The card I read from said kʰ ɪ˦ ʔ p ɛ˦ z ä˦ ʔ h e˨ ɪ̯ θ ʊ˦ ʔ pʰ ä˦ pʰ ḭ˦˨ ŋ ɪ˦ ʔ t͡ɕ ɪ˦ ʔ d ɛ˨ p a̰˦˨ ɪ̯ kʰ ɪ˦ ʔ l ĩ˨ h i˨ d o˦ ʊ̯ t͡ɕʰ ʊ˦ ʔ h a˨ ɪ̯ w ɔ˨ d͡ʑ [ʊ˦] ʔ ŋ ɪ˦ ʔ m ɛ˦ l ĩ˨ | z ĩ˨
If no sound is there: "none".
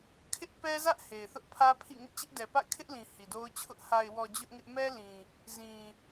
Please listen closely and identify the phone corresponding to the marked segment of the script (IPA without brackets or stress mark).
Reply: ʊ˦